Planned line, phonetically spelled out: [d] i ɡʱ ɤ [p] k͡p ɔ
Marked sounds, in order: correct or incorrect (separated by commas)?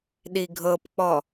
incorrect, correct